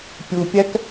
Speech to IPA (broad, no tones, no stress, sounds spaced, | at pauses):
pʲ u pʲ æ k